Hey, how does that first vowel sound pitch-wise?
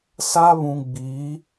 high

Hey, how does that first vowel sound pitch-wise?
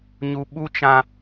high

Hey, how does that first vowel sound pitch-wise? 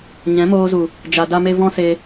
rising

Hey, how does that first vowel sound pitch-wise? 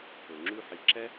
low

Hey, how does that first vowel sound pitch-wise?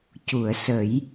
low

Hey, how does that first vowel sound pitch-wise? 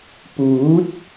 rising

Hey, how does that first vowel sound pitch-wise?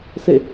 falling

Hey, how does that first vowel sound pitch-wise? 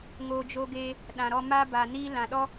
low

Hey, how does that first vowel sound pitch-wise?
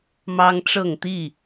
high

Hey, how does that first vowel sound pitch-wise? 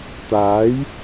rising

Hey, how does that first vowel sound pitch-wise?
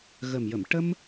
low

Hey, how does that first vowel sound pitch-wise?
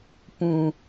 low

